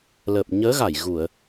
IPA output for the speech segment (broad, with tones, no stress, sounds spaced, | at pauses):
l ə˨˩ p̚ ɲ əː˨˦ ɣ a˧˩ j ɣ u˧˩˨ ə̯